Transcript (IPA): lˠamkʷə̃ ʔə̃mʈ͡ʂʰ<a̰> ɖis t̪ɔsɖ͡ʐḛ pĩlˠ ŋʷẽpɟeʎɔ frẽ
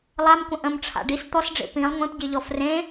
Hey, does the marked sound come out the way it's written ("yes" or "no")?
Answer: yes